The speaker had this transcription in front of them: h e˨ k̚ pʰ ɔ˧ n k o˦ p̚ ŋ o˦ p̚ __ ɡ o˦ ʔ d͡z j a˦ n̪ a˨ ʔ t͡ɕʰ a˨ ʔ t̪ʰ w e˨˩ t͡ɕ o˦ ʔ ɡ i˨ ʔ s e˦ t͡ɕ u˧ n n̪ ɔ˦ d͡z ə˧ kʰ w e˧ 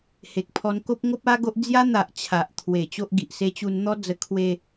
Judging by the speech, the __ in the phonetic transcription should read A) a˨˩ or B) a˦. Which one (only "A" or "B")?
B